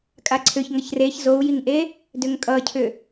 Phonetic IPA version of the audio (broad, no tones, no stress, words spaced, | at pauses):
kʼaǀʰʏç ŋʌçreç zou̯jiŋʔe | dʏŋkʼʌcʰʏ